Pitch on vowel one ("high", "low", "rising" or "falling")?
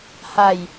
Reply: low